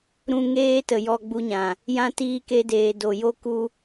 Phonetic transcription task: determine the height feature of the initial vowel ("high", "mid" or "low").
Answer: high